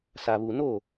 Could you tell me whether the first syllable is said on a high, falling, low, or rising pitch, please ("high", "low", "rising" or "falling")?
low